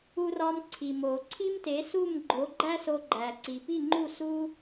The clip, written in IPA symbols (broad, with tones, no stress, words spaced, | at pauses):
u˧rɒ˧mǀʰi˩ mo˩ ǀʰi˥mte˩˥ su˥˩mɡ͡ǃo˩˥ ɡ͡ǃæ˥so˧ɡ͡ǃæ˩ ǀi˩pi˥˩ŋ͡ǃu˥˩ su˥